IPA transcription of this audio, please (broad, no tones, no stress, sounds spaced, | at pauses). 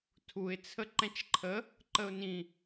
tʰ u ɪ̯ t͡sʰ ə ǃ ɛ̃ t͡ʃ ǃʰ ə | ǃ ə ʊ̯ n ĩ